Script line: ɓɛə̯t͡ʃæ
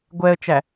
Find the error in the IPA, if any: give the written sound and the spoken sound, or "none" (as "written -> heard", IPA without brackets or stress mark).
ɓ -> ɡʷ